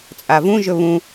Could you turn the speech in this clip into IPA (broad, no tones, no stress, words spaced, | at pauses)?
t͡sʼavũʒɵ βũ